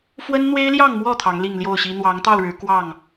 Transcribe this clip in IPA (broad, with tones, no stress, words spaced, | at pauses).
fwə˦nn̪we˦ɪ̯ljɑ˥˨ŋmwɔ˥˨ t̪ʰɑ˨˦ŋli˥˨ŋljo˥˨ʊ̯ɕi˦ n̪wɑ˨˦ŋt̪ɑ˥˨ʊ̯ɻɻ̩˨˦ kwɑ˥˨ŋ